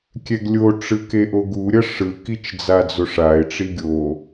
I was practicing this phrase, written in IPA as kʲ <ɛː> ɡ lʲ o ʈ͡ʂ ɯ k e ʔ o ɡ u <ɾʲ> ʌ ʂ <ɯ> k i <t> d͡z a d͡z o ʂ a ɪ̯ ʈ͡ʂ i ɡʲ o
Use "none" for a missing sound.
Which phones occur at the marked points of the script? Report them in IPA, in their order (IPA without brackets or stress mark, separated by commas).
ɛ, ɾʲ, ɯ, t͡ʃ